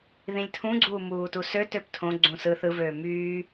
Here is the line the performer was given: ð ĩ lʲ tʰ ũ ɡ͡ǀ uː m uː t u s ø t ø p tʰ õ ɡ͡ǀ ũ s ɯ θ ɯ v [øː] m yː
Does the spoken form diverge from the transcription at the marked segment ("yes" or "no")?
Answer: no